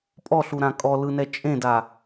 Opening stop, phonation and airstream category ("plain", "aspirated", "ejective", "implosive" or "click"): ejective